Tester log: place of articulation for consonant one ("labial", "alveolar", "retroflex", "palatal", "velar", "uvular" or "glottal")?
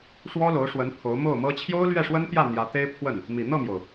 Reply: retroflex